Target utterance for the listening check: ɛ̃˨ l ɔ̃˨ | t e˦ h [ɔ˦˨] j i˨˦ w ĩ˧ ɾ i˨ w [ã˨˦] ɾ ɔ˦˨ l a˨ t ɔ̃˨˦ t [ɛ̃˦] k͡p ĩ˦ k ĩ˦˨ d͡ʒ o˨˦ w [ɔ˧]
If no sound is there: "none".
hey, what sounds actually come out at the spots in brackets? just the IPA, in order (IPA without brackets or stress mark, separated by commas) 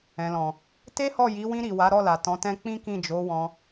ɔ˦˨, a˨˦, ɛ̃˦, ɔ̃˧